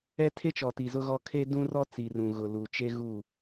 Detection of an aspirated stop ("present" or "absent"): present